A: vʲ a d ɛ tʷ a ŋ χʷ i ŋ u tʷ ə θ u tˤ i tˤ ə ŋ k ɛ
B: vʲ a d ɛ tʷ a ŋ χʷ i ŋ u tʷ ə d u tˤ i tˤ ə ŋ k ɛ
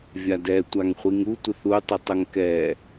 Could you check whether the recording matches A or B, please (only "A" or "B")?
A